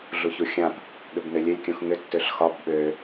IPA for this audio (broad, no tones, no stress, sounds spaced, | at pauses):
ɮ u ç u xʲ ã p | ɠ ʏ b n ø lʲ ø lʲ kʲ ũ x ŋ ʏ tː ʏ ɬ x ɒ b ɓ ø